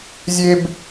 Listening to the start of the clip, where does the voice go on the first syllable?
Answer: high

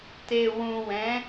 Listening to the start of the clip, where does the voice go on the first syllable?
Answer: low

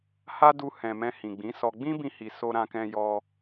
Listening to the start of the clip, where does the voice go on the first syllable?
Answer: high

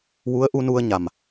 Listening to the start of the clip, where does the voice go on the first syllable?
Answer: rising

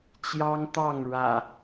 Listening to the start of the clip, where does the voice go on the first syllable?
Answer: high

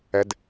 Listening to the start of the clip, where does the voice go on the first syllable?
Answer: high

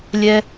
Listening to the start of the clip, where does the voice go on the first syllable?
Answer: high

